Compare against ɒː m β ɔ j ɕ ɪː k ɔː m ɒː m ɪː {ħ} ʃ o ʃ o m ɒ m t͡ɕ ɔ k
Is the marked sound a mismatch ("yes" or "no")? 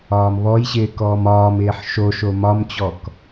no